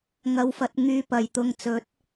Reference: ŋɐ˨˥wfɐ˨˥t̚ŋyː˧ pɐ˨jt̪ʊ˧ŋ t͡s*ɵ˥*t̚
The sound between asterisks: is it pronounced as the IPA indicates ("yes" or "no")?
no